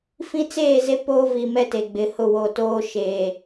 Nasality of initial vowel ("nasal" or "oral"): nasal